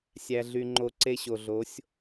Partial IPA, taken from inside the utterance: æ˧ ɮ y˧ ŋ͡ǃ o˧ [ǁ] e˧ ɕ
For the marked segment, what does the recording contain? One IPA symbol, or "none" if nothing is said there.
ǀ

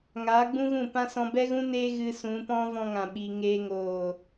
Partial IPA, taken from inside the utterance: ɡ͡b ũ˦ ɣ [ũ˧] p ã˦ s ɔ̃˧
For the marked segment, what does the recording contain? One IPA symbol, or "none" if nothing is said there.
ũ˦˨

